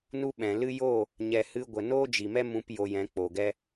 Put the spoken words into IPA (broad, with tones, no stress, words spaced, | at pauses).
nu˦ɓɛ̃˨ lɨ˧joː˦˨ | ɲɛ˨hɨ˧ ɡʷə˨noː˦d͡ʒi˨mɛ˦ mũ˧p jo˧jɛ̃˨˦ k͡po˨ɡɛ˦